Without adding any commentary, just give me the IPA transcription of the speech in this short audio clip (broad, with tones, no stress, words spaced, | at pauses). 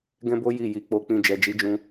ɡɛ̃˦bo˦ ji˦˨ ji˨˦k͡po˧k͡pĩ˧ d͡ʒɛ˨d͡ʒi˨˦d͡ʒũ˧